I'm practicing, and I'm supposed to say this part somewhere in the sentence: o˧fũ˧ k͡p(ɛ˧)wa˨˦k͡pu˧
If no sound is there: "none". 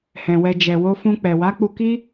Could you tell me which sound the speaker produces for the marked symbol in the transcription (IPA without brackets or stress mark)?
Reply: ɛ˨